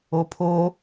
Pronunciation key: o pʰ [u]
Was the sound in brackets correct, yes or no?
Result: no